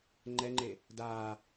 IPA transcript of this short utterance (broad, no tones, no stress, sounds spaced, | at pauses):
ŋ͡ǃ ɛ ŋ͡ǃ e | d aː